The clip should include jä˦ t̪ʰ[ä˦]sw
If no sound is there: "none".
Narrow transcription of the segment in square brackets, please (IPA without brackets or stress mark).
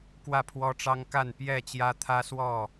ä˦